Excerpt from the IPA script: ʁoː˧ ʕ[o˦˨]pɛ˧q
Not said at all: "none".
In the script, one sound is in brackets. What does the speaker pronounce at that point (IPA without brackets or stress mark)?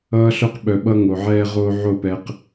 o˦˨